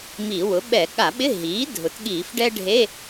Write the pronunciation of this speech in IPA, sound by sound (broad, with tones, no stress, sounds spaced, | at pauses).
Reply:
m i˧˩˧ w ʊ˩˥ ɓ ɛ˧˩˧ ɠ a˧˩˧ ɓ ɪ˧˥˧ ɦ iː˩˥ dʱ ʊ˩˥ t ɠ iː˧˩˧ f ɖ ɛ˥ ɖʱ e˧˥˧